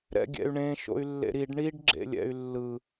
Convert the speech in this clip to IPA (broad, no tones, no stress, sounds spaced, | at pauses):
ɾ ɛ̰ ɡʲ ɛ̰ y̯ ɳ ẽ ʃ o̰ y̯ lː ḛ ɾ i ɖ ɳ i ɖ ɡ͡ǁ ḛ lʲ ɛ̰ y̯ lː ɯ